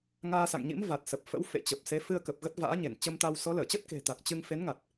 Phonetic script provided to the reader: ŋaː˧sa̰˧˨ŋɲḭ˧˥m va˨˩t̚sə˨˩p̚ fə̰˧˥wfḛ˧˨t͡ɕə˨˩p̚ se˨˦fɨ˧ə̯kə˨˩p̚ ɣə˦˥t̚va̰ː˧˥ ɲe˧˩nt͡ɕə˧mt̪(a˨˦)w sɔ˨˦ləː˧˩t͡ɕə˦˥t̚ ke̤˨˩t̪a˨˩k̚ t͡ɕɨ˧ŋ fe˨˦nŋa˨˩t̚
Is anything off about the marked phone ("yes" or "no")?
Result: yes